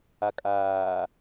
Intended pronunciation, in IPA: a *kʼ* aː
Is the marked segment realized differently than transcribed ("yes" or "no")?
no